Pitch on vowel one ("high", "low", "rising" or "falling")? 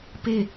falling